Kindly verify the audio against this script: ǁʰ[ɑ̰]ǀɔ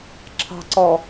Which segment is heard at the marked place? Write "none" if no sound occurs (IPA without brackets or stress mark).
ɑ̤